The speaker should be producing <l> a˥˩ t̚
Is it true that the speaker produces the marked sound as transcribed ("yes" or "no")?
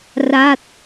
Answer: no